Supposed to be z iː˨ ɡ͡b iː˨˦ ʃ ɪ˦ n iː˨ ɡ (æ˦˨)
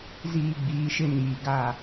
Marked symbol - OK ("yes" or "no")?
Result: no